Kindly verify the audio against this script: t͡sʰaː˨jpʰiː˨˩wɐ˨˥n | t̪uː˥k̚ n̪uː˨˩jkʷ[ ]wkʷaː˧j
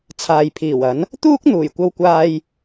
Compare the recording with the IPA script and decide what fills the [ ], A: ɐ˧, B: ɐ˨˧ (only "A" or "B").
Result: A